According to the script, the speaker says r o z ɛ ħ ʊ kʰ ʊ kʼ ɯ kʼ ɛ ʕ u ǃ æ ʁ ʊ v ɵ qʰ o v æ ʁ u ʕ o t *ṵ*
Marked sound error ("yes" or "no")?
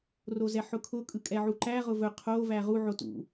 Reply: no